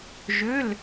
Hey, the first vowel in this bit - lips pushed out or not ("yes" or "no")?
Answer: yes